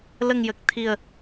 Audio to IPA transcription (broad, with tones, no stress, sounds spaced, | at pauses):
l ə˨˩ ŋ j ə˨˩ k̚ t̪ʰ i˨˩ ə̯